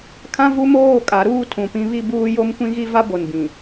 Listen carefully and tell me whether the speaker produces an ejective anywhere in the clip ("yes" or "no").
yes